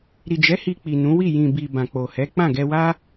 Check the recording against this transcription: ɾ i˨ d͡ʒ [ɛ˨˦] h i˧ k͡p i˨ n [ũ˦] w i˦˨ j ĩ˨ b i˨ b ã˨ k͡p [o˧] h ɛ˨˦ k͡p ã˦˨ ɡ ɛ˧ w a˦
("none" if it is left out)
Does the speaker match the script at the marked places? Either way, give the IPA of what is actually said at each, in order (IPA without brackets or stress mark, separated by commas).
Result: ɛ˨˦, ũ˨˦, o˨